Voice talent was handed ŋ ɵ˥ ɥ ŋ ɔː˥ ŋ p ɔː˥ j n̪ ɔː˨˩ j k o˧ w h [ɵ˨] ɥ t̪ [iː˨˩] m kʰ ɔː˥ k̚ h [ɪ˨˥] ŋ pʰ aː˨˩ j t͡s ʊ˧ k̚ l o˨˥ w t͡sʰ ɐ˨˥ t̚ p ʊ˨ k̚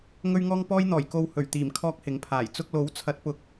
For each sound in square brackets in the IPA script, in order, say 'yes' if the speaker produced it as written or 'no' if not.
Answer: no, yes, yes

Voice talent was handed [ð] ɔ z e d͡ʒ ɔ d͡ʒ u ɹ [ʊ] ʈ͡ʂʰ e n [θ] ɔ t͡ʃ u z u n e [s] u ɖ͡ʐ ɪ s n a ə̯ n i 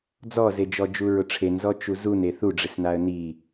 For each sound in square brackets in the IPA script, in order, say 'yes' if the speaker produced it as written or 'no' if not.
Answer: no, yes, no, no

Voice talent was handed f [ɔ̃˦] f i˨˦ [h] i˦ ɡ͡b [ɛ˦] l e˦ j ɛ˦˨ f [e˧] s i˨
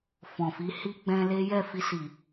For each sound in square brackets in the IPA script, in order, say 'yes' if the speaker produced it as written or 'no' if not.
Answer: no, yes, no, no

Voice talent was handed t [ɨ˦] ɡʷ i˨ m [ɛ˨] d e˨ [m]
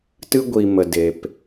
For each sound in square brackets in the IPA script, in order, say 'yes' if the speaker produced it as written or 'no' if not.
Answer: yes, no, no

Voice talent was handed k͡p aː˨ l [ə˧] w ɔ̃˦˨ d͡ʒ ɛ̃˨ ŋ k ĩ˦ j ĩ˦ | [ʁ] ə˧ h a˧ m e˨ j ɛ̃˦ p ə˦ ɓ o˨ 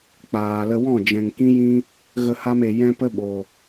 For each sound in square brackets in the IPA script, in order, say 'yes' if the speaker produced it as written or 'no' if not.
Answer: yes, no

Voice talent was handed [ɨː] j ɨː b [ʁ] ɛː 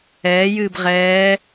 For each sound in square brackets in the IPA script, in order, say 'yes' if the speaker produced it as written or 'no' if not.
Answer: no, yes

